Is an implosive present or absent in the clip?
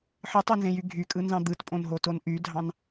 absent